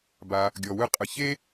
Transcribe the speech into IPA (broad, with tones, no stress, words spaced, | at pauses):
ba˩ | ɡʲɔ˩wɯ˧qʼɯ˩çe˥